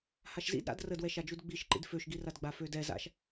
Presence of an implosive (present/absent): absent